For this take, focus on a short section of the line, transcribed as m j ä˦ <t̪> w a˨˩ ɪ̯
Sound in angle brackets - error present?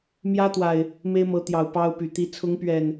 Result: no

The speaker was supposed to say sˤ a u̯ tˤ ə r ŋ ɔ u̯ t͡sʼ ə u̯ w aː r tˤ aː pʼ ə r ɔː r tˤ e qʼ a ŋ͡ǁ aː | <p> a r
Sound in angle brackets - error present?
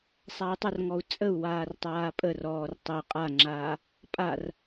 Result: yes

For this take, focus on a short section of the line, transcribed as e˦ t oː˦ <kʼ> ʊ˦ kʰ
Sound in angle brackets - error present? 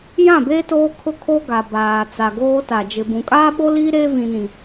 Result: yes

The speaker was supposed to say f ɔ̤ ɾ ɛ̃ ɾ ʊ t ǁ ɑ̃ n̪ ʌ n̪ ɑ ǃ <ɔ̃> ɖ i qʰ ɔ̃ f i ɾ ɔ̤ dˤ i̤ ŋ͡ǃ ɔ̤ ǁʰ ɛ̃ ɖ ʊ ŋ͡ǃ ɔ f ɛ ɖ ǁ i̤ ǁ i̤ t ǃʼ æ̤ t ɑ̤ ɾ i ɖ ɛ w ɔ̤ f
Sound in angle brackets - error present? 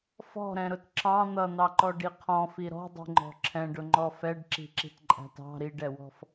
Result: yes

